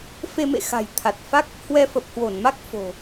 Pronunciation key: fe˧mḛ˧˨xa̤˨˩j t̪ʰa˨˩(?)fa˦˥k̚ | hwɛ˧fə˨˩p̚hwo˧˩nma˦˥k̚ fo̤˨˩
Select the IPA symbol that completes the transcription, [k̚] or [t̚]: t̚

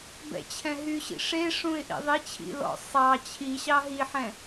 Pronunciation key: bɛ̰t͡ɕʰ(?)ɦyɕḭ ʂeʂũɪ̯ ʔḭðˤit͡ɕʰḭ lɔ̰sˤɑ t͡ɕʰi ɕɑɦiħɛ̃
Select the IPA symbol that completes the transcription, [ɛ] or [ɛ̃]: ɛ̃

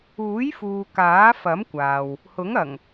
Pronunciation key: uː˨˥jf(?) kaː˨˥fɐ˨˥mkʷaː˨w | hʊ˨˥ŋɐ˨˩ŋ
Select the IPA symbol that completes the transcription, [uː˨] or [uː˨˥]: uː˨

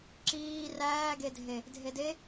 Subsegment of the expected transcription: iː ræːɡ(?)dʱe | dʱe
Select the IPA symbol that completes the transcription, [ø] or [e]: e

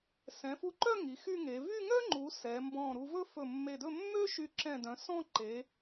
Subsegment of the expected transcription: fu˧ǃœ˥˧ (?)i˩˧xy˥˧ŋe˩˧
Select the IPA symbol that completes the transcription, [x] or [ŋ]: ŋ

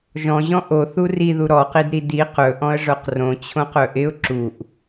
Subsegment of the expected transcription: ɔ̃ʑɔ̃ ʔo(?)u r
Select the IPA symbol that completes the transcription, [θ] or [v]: θ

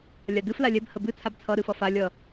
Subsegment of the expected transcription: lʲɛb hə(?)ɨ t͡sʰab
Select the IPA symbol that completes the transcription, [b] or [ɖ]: b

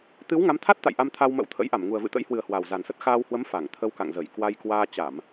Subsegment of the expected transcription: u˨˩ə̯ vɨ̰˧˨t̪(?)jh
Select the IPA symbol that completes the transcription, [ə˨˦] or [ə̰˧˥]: ə̰˧˥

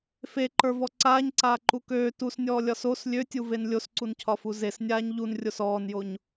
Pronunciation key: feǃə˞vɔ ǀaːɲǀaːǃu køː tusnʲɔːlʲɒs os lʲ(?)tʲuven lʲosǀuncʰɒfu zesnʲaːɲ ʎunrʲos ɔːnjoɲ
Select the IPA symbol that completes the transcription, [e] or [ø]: ø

